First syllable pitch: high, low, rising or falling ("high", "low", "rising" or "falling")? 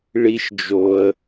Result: high